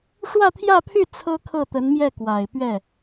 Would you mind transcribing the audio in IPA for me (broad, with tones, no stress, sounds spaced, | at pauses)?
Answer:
ʂ w ä˥˧ t̪ʰ j ä˥˧ pʰ y˥˩ t͡sʰ ɤ˥ kʰ ɤ˥˩ t̪ ə˧˥ n m j ɛ˥˩ k w a˨˩ ɪ̯ p ɥ ɛ˥˩